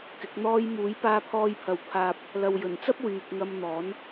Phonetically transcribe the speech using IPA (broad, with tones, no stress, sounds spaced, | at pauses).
k ɪ˨˥ k̚ n̪ ɔː˥ j m uː˨˥ j p aː˧ pʰ ɔː˧ j pʰ ɐ˨ w pʰ aː˧ p̚ | l ɐ˨ w j ɵ˨˩ n t͡s ɐ˥ p̚ w yː˨ k̚ ŋ ɐ˧ m n̪ ɔː˨˥ n